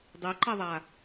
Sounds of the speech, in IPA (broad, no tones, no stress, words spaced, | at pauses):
dˤiǃiðˤa